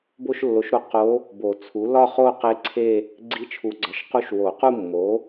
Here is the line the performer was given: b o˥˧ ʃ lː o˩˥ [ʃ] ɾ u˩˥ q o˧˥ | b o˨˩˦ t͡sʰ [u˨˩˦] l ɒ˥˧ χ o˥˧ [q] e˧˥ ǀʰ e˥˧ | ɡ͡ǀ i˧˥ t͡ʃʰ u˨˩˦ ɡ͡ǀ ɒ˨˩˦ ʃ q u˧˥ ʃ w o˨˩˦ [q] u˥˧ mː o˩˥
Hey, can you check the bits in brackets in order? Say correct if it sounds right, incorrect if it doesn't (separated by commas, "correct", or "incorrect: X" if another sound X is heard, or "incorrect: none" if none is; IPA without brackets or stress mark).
correct, incorrect: u˩˥, correct, correct